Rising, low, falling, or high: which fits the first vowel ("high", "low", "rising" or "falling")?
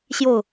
falling